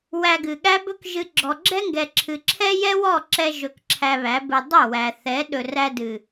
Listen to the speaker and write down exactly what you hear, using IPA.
w æ˧ ɡ ɨ˨ ɠ æ˦ b ɵ˦ k ʒ ɨ˧ ɡ͡ǁ ɔ˨ ɡ͡ǁ ɛ˦ ŋ ɡ ɛ˨ ǁʰ ɨ˨ ǁʰ ɛ˦ j ɛ˦ w ɔ˦˨ ǁ ɛ˧ ʒ ɵ˧ k ǁʰ æ˧ β æ˨˦ b ɨ˧ dˤ ɵ˦˨ w æ˨ θ ɛ˨˦ ɗ ɵ˨ r æ˧ d ɨ˨

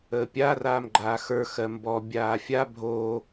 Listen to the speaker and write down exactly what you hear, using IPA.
əː pʲ a r aː m ɡ͡ǃ aː x ə˞ x ɜ m b ɔ bʲ aː fʲ a bʱ oː

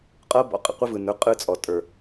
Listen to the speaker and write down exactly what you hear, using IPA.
qʼ ɤ˦ b ɔ̰˨ qʼ ə̰˨ qʷ ə˦ v ɯ˨ n ə˞˦ qʼ ɯ˦ t͡sʼ ɔ˨ tʼ ə˞˨

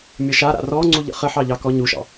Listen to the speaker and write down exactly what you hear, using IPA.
mʲ ʌ ʃ a ɾ a̰ r ɔ ŋ͡ǀ u ʎ ə̰ χ ə ħ ɑ ʎ ɑ k ɔ ɲ u ʃ ɑ̰

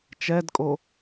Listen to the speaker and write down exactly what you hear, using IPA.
t͡ʃ ɛ d kʼ o

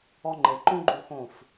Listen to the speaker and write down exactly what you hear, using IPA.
ɔ˧ ŋ͡ǃ e˨ ǃ õ˦ ɡ͡ǃ u˧ x õ˦˨ f

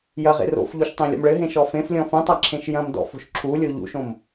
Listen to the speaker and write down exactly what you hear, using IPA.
j ɐ ʁ ḛ r o̰ f ʎ u ʃ tˤ ẽ lʲ ɔ̰ m ɭ ɘ ɦ ẽ ʃ ɔ f ẽ f lʲ ɔ̃ f ũ tˤ a ǁʰ ẽ ʃ j ɐ̃ m d ɔ̰ f o̤ ʃ ǁʰ u lʲ o ʎ ṵ ʃ õ m

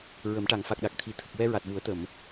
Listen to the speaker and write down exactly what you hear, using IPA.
ɹ ə˨˩˦ m ʈ a˨˩˨ ŋ f a˨˩ k̚ ɗ a˨˩ k̚ t̪ʰ i˨˩˨ t̪ʰ ə˨˩ k̚ w ɛ˧ ɹ a˨˩ t̚ v u˨˩˦ ə̯ t̪ ə˨˩˨ m

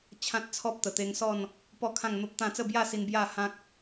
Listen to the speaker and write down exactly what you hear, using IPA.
t͡ɕʰ ã˦ t̚ t͡sʰ ɔ˦ p̚ t̪ ə˨˩ t̪ e˧ ŋ s ɔ˥˧ n | p ɔ˥˧ kʰ ã˥˧ ŋ n̪ o˦ p̚ t̪ ã˥˧ t͡s ə˥˧ b j a˥˧ s i˧ n b j a˥˧ h ã˦ k̚

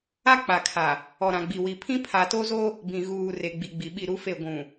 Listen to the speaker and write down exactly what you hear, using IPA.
a˦ k͡p a˨ kʰ a˨ | ɔ˨ ɾ ã˨ ɡ͡b i˨ w i˨ pʰ ĩ˦ pʰ a˨ t o˦ z o˦ | b ĩ˨ ɣ uː˨ r e˨ ɡ͡b i˨ ɡ͡b i˨ ɓ i˦˨ ɾ u˦ f e˦˨ ɡʷ ũ˨

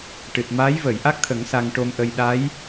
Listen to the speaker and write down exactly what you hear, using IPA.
ʈ ɨ˨˩ t̚ m aː˧˥ j v əː˨˩˨ j ʔ a˦˥ k̚ t̪ʰ ə˨˩˦ ŋ s a˧ ŋ ʈ o˧ m ʔ ə˧ j ɗ a˧˥ j

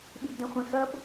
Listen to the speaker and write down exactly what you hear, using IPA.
ɓ i b d ɛ̃ χʷ ɛ̃ x ɐ b

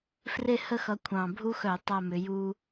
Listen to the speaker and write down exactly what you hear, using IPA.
f r e˥˨ h ə˥˨ x ʌ˨˦ kʷʰ ɑ̃˨˩ bʱ u˦ x œ˧˩˧ tˤ a˥˨ m ʏ˨˦ j u˦

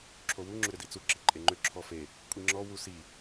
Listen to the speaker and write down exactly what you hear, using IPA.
ǁʰ o w u ŋ͡ǁ ʏ ɾ ʏ d i t͡s u ǁ i ǃʼ e ŋ͡ǃ ʏ ǁʰ ɔ f e | kʷʼ i ŋ͡ǁ ɔ w u s i

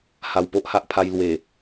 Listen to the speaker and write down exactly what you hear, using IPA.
h a˨˩ w p o˦ ʔ h a˦ ʔ pʰ a˧ j l w e˨˩

